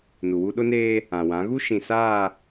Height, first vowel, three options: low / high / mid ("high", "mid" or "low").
high